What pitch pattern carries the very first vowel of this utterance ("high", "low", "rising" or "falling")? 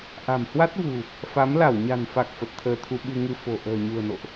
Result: low